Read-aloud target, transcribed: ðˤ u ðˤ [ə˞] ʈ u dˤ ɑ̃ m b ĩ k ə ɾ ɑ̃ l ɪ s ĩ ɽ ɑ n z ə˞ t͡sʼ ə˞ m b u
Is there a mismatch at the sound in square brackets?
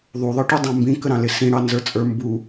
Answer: no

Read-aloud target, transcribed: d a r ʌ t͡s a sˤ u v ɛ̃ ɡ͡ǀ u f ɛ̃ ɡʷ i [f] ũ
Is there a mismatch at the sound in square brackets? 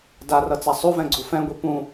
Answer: yes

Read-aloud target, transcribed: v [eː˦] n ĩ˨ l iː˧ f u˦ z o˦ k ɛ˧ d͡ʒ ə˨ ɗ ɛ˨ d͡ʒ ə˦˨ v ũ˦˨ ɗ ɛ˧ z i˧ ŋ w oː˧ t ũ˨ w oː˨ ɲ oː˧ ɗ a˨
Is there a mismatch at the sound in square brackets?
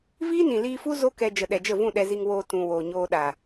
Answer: yes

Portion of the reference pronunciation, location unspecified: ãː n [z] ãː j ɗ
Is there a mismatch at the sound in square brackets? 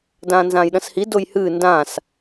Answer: no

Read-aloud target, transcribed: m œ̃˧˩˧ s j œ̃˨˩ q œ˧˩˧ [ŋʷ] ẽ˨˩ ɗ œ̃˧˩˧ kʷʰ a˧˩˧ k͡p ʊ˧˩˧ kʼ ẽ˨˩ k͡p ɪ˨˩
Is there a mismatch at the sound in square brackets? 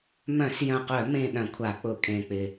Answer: yes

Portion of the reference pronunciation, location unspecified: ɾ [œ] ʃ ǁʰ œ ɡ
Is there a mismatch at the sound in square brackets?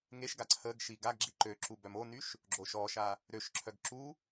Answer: yes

